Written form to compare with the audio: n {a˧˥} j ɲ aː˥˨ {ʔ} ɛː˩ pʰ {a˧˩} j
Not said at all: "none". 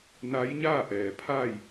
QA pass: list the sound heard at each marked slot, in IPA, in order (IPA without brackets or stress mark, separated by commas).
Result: a˧˥, ʔ, a˥˨